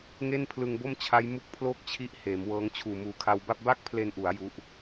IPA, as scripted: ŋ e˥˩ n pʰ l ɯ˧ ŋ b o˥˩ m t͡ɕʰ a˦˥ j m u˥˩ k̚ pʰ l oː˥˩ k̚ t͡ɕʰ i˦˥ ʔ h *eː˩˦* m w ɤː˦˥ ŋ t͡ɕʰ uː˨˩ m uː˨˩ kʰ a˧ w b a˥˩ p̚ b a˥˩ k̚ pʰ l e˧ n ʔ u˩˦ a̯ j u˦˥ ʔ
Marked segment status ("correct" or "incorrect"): correct